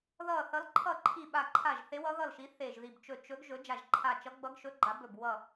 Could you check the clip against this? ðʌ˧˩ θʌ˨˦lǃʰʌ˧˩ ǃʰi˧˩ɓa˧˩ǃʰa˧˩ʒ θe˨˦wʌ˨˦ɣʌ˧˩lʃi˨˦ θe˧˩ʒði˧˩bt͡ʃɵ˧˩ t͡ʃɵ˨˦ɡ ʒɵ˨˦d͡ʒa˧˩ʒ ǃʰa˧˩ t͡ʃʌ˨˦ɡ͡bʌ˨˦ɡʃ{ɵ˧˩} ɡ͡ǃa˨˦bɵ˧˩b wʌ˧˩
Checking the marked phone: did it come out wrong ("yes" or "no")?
yes